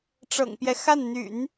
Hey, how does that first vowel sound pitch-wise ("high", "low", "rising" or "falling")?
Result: low